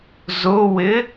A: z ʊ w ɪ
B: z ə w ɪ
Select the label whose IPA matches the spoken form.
A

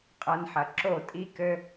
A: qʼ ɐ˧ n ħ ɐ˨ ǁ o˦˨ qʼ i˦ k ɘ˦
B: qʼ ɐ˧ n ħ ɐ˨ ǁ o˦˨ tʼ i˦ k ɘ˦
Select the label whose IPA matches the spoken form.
B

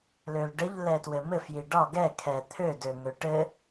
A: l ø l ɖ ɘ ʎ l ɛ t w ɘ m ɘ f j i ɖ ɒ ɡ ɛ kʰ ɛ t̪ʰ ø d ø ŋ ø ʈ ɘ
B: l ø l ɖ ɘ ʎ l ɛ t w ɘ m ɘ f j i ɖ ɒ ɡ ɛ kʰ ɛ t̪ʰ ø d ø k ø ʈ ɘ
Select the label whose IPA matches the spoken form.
A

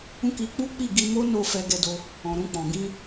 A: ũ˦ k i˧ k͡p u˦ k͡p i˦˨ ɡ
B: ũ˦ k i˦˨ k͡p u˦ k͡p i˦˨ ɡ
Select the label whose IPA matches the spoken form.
A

